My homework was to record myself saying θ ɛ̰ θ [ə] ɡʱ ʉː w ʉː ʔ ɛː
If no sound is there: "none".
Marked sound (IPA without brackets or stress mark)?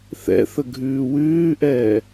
ə